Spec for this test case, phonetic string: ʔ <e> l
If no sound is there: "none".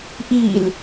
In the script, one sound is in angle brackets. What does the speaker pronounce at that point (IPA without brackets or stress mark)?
i